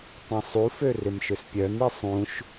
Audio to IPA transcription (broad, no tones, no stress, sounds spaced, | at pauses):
tˤ ĩ sˤ u f ø r ɪ m ʃ ʏ s pʲ œ n i sˤ ũ ʃ